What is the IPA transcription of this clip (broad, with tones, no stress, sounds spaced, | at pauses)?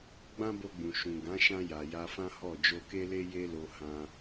ɡ͡b ã˦ b o˧ ɡ͡b ũ˨ ʃ ũ˨ ɡ ã˨˦ ʃ ã˧ j a˨ j a˧ f ã˦ h ɔ˦˨ d͡ʒ o˧ k e˦ l e˦ j e˦ l o˧ h ã˧